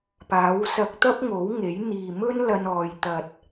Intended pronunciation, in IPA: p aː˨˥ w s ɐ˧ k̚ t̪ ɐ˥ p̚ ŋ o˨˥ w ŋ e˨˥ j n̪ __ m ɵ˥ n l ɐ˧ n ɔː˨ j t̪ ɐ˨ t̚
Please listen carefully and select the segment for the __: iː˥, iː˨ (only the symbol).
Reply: iː˨